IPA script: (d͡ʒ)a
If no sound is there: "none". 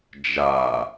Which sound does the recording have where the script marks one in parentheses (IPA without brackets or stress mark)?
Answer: d͡ʒ